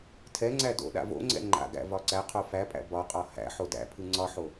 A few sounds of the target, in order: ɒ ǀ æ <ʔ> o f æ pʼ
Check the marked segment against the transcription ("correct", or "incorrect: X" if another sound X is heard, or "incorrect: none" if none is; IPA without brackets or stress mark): incorrect: qʰ